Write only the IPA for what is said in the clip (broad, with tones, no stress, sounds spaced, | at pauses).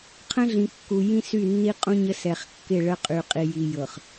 qʰ ə̃˦ ɮ ĩ˨ kː u˨ j ĩ˦ s y˦˨ nː i˦ qʼ ũ˦ ɲ ə˦ s ɛ˨ χ kː ɪ˦˨ ɭ ə˦ qʼ y˨ qʼ i˨ j i˨ j ɤ˨ χ